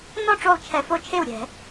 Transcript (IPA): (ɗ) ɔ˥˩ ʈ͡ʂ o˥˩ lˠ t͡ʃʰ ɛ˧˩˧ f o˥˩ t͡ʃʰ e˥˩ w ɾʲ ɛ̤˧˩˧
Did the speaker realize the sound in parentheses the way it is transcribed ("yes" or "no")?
no